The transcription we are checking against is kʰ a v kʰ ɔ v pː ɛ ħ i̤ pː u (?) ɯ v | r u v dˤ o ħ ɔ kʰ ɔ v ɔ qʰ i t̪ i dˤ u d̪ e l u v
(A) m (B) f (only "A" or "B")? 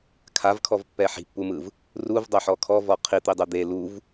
A